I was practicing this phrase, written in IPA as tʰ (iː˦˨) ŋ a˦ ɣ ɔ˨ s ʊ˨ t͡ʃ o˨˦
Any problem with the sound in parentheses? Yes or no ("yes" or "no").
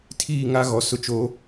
no